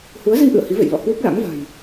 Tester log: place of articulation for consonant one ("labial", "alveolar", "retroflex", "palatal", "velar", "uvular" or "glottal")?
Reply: glottal